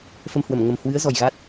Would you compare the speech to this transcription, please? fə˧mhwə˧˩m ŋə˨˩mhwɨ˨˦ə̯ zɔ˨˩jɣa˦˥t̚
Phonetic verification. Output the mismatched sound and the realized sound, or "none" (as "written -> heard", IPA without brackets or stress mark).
none